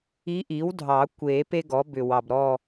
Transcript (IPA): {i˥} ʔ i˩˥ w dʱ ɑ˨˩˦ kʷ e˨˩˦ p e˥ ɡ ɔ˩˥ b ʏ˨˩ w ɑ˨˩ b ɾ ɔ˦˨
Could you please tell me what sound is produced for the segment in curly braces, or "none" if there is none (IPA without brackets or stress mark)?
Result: i˧˥